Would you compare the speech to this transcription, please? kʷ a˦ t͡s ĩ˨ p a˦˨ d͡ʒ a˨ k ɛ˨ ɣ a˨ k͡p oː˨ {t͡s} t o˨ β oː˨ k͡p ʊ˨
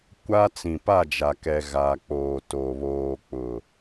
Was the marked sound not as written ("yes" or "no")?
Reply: yes